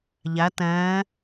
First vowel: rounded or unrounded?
unrounded